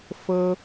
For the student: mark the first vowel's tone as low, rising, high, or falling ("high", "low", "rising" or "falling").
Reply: high